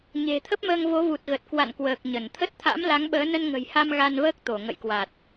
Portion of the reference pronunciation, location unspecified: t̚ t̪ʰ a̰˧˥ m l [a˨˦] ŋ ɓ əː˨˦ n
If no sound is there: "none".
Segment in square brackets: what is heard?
a˨˦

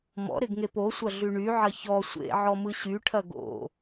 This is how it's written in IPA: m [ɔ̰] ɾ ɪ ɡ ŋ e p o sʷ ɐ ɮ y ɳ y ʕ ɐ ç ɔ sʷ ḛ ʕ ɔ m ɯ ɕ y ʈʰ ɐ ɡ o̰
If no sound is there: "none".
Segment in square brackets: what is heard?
ɔ̰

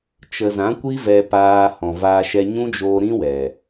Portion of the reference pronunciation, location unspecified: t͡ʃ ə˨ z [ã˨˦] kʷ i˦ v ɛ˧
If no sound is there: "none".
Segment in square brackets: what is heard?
ã˨˦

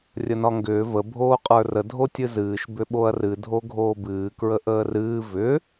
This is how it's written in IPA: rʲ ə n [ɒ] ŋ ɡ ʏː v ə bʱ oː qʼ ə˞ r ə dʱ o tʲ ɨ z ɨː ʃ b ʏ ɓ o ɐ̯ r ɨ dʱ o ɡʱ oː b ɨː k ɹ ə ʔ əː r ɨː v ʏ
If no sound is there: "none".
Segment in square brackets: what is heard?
ɒ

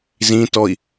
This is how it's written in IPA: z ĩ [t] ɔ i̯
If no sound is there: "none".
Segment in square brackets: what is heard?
t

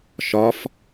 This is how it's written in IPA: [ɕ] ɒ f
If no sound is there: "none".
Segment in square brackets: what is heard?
ʃ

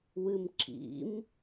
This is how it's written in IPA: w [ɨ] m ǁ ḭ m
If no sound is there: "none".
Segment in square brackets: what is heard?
ɨ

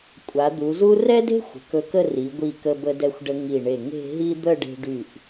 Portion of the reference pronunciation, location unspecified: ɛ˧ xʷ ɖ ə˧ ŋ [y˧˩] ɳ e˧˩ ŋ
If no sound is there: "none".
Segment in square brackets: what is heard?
i˧˩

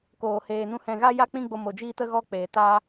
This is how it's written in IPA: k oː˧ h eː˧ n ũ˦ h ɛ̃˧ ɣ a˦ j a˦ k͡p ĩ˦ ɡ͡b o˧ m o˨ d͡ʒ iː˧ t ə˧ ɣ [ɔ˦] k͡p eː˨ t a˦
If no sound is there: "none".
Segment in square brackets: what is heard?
ɔ˦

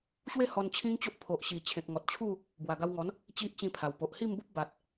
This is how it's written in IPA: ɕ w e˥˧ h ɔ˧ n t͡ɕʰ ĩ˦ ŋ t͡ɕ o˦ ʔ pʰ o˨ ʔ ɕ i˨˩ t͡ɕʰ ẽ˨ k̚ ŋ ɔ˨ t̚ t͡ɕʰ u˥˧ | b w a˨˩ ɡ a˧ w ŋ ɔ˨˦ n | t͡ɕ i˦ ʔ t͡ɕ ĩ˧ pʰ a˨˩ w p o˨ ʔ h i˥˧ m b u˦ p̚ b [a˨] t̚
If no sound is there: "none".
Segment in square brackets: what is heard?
a˨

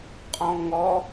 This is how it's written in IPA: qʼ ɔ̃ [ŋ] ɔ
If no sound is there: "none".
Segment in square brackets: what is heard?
ŋ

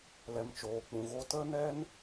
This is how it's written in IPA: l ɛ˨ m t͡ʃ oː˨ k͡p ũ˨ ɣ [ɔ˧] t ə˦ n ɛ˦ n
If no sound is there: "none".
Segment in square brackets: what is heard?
o˧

